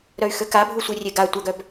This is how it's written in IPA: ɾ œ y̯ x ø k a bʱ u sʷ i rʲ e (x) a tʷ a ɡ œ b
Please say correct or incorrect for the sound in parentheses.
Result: incorrect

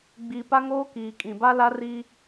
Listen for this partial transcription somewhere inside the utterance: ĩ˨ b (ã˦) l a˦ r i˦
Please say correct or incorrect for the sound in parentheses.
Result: incorrect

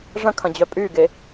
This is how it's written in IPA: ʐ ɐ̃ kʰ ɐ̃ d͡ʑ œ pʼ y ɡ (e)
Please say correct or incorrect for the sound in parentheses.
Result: correct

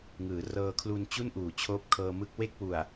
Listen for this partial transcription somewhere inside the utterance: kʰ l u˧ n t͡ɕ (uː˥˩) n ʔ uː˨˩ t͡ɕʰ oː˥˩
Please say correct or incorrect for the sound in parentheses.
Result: incorrect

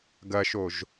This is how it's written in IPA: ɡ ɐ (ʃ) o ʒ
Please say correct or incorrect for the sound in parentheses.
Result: correct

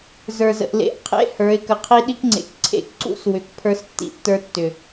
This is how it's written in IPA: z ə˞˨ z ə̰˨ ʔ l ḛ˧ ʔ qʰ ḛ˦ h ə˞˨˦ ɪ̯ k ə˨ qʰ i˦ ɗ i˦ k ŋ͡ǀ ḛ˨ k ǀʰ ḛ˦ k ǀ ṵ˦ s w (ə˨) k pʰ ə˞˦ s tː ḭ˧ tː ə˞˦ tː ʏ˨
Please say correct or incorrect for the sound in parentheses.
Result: incorrect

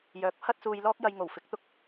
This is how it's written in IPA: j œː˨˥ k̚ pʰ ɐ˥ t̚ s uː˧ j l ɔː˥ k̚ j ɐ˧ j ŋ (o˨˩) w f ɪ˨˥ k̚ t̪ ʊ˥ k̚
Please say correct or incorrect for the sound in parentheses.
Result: correct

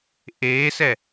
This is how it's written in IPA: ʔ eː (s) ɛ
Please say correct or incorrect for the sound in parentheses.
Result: correct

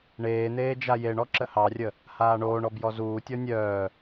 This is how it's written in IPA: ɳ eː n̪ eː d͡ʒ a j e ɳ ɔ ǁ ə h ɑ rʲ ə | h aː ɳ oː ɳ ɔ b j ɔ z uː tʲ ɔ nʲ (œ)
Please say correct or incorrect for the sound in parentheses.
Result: incorrect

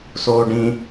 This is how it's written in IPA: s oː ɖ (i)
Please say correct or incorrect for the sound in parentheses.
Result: incorrect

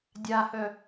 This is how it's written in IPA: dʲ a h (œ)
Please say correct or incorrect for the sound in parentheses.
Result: correct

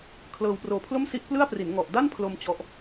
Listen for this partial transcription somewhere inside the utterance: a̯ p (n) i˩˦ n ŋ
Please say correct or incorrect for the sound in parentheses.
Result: incorrect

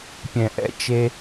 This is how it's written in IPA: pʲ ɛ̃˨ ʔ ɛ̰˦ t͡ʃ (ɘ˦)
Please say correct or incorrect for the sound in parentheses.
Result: incorrect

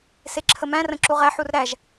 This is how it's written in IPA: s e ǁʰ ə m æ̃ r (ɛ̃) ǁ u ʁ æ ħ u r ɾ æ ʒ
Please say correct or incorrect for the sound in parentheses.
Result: incorrect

